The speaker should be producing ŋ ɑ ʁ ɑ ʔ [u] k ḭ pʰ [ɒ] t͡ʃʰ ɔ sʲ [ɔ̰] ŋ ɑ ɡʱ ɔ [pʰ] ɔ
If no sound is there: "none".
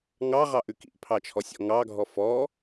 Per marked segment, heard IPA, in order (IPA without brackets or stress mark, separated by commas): ʉ, ɑ, ɔ̰, f